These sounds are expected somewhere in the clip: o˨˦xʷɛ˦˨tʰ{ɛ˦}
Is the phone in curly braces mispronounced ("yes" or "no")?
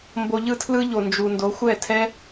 no